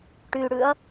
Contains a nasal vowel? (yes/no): no